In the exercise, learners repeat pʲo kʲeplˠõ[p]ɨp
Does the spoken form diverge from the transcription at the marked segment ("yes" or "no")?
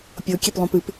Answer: no